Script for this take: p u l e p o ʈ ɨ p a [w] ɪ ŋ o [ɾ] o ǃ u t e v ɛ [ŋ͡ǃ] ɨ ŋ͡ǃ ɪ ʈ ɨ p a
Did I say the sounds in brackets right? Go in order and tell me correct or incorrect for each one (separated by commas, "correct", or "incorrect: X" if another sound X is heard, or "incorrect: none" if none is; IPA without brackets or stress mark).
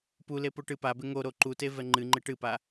incorrect: b, correct, correct